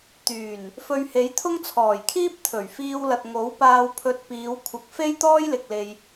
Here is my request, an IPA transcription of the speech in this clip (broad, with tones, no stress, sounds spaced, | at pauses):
t̪ yː˨˩ n | f ɵ˧ ɥ h e˨˥ j t̪ʰ ʊ˥ ŋ t͡sʰ ɔː˨˩ j kʰ iː˥ p̚ t̪ʰ ɵ˨˩ ɥ f iː˧ w l ɐ˨ t̚ ŋ o˨˥ w p aː˧ w pʰ ɵ˧ t̚ p iː˨˧ w kʷʰ ɐ˨ k̚ f e˥ j t̪ ɔː˥ j l ɪ˨ k̚ l e˧ j